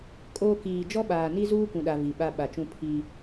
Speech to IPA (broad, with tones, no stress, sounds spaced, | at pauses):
kʼ oː˨ k iː˨ d͡ʒ ɔ˦ ɓ aː˨ n i˦ z uː˦ kʷ ũ˨ ɗ a˨ v i˨ ɓ a˨ ɓ a˨ t͡ʃ ũ˦ pʰ i˦